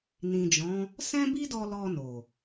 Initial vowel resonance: nasal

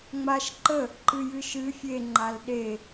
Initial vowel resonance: oral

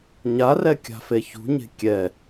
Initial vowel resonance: oral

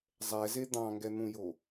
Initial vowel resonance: oral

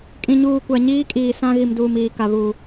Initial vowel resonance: nasal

